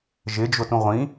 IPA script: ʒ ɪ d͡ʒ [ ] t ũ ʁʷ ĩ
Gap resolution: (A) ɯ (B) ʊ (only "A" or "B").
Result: B